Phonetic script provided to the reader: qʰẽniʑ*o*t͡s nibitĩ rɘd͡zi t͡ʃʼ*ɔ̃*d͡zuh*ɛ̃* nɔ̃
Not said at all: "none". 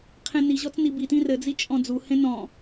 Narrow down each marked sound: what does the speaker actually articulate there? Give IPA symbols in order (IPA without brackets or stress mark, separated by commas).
ɔ, ɔ̃, ẽ